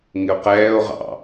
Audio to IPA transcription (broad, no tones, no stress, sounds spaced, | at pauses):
ŋ ɪ o̯ q ɛː o̯ ʁ ɑ̰